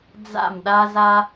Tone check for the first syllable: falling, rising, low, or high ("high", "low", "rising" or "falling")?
falling